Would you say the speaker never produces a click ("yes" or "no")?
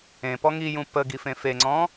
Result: no